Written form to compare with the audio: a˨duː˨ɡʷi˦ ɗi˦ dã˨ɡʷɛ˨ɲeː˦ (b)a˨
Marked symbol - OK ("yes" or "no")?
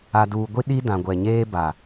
yes